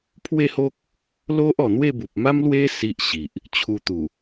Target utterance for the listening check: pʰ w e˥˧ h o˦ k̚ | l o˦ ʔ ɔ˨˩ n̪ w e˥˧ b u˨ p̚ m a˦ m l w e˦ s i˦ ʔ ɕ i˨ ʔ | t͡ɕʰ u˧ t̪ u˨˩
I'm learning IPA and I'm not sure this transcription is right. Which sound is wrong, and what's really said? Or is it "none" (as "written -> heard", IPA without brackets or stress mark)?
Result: none